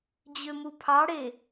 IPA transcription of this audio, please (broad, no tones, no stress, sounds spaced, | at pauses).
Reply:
d͡ʑ ø m u pʰ ɑ ɽ e